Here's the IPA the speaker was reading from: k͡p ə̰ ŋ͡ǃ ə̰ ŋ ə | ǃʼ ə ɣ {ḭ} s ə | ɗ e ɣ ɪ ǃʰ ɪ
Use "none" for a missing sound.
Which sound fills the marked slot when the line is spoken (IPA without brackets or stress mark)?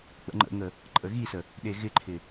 i